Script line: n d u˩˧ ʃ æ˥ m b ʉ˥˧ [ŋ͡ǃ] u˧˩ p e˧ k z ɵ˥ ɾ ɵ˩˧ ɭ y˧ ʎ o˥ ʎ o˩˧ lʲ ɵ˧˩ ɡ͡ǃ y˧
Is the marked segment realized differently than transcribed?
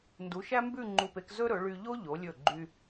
no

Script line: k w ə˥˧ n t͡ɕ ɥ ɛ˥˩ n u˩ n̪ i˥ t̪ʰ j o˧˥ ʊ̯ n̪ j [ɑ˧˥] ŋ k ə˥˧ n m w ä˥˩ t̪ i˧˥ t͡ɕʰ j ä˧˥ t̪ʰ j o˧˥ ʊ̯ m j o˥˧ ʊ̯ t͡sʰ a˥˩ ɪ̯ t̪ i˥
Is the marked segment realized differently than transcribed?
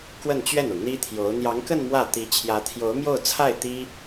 no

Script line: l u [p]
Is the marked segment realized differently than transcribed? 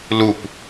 no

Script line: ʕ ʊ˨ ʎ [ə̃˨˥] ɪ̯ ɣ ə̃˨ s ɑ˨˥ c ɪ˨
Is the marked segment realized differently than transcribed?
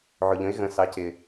no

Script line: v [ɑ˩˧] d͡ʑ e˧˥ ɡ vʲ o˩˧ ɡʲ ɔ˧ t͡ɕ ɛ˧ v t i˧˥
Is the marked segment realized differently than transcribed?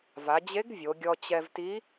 yes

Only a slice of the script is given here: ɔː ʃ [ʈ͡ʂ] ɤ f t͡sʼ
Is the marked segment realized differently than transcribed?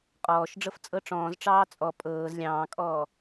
yes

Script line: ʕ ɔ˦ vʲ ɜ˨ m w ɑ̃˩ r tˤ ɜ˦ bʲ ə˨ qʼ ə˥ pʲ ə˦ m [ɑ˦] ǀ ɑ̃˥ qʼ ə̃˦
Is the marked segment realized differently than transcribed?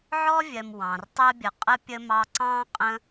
no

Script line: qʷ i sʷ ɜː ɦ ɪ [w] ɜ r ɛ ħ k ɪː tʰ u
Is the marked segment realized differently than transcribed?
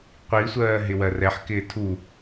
no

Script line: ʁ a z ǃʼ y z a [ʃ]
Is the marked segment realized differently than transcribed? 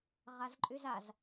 yes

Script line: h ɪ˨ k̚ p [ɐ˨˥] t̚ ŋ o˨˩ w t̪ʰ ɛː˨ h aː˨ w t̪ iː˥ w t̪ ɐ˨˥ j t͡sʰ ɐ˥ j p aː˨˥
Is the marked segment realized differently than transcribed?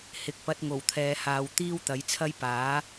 yes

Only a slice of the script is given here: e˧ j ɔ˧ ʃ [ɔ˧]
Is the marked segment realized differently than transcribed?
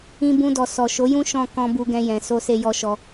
no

